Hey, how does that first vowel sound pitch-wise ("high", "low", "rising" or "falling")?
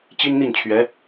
high